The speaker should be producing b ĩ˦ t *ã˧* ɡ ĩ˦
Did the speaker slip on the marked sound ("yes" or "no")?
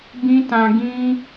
no